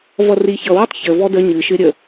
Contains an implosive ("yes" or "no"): no